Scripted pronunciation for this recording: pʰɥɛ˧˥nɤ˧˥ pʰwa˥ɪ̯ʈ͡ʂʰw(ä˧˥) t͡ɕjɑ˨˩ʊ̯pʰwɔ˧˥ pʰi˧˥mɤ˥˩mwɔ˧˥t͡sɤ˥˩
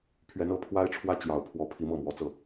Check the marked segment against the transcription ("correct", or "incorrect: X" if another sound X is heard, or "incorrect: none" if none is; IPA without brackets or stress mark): incorrect: ä˥